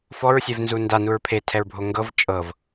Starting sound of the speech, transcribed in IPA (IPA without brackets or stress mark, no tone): f